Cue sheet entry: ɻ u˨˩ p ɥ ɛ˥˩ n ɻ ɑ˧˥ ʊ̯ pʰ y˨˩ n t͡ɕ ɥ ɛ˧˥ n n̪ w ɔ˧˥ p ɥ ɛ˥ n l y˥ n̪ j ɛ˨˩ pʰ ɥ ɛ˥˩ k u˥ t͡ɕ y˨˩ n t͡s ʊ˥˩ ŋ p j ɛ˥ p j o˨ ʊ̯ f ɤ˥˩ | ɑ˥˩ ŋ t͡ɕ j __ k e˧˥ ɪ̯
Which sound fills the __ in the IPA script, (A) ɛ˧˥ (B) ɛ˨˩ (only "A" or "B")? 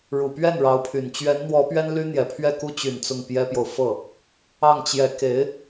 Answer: A